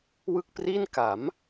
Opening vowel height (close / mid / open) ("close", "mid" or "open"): close